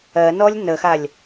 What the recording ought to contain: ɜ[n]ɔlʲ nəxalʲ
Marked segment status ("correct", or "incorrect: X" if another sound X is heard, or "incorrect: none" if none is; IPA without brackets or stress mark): correct